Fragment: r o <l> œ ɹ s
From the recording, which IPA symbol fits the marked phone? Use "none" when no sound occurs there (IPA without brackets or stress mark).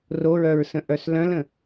ɹ